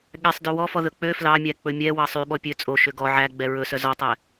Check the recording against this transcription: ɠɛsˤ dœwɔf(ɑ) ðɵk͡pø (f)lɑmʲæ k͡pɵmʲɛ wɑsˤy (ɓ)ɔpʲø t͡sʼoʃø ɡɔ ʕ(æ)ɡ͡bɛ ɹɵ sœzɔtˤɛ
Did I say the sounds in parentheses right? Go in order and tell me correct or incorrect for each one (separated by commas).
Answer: incorrect, correct, correct, correct